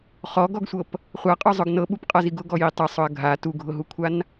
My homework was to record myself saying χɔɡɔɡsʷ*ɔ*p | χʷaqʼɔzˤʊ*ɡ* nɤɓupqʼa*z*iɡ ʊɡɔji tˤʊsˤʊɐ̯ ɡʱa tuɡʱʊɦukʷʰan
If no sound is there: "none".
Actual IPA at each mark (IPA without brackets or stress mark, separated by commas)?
ɤ, ɡ, z